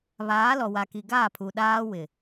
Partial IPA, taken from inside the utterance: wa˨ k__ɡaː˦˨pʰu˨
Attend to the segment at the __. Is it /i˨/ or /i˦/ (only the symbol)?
i˨